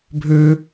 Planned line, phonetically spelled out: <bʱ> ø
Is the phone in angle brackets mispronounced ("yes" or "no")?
no